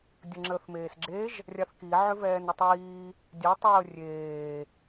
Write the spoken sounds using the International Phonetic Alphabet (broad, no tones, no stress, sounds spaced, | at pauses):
dʲ ə ŋ͡ǁ əː θ m eː s ɡ͡ǁ e ʒ | rʲ a θ k i ʕ ʏ v ɛː n ʏ tˤ iː | dʲ ɛ tˤ əː rʲ eː